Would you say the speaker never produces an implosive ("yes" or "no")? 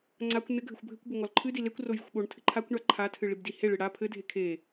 no